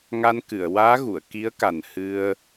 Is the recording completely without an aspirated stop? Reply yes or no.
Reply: yes